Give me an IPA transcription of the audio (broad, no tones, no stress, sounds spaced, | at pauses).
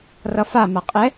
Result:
r ʌ f a m a qʼ ɛ